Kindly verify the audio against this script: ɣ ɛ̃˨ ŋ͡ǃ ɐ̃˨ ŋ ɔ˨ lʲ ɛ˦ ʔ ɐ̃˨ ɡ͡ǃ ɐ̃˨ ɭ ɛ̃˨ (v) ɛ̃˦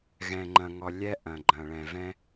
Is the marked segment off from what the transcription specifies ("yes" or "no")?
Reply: no